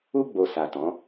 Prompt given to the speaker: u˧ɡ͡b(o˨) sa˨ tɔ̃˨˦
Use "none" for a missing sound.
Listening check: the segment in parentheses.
o˨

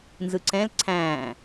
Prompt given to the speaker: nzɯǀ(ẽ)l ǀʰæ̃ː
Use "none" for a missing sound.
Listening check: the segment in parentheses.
ɛ̃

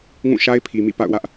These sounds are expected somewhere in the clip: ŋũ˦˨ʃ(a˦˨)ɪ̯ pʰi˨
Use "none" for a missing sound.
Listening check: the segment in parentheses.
a˦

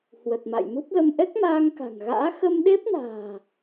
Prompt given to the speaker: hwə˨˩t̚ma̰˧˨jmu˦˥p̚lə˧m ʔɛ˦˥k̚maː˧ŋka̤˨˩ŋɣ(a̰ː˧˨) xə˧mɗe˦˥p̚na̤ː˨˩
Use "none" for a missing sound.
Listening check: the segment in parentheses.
a̰ː˧˥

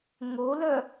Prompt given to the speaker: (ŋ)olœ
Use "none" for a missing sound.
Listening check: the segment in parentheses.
ŋ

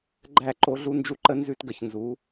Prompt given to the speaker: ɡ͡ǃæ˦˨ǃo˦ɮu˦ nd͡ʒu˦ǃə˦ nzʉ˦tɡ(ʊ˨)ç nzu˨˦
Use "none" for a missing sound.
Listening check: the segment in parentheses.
ə˨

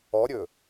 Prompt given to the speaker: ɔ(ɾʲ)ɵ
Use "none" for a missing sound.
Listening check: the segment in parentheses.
ɾʲ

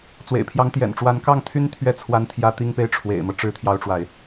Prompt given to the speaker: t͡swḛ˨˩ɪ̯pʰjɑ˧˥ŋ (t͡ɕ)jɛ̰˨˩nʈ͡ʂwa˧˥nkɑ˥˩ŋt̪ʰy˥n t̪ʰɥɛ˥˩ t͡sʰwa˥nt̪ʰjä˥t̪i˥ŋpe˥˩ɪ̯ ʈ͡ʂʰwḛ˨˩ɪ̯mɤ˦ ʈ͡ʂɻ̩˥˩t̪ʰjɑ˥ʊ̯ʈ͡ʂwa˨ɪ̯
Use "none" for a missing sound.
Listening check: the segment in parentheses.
t̪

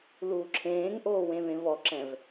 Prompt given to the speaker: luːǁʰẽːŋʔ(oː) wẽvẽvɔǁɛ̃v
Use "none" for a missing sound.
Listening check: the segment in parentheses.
oː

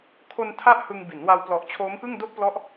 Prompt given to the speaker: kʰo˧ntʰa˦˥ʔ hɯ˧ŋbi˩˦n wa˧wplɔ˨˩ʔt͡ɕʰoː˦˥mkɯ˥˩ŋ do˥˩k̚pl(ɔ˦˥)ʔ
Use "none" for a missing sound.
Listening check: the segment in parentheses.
ɔ˦˥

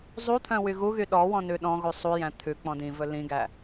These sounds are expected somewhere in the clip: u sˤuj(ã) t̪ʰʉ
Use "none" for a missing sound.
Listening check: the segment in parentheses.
æ̃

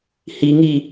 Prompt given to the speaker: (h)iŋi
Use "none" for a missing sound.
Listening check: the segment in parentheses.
h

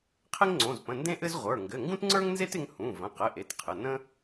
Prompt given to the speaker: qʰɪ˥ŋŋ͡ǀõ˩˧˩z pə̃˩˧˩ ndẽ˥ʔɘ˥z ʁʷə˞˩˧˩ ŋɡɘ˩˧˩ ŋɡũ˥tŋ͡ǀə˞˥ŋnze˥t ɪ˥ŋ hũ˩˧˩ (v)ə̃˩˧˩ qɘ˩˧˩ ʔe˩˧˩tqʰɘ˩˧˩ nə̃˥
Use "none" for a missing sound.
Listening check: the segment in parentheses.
v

